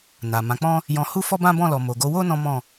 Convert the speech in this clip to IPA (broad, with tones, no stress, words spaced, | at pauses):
na˨mã˨˦k͡pɔ̃˦ | jɔ̃˧hu˦ fɔ˦bã˦bɔ̃˦˨lɔ˨ mo˨ɡo˨˦wo˦ nɔ̃˦mɔ̃˦˨